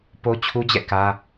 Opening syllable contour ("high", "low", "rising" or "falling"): high